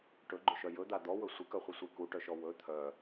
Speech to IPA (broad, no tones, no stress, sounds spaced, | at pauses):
ʈ ɵ ɡ͡ǃ ɵ ʃ œ j ɵ d̪ a d̪ ɔ w ɵ sʷ ɪ k œ χʷ ɪ sʷ e k u ʈ œ ʃ ɔ w ɵ t̪ʰ œ